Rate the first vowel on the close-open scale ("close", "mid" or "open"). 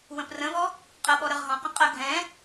mid